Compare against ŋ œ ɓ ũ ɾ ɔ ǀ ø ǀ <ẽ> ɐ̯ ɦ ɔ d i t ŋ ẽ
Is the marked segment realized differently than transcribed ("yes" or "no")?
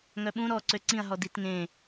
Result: yes